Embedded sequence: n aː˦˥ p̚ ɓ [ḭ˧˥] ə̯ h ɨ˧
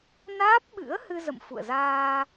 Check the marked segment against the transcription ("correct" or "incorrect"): incorrect